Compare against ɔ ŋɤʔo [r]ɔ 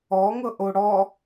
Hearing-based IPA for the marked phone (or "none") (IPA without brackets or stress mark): ɽ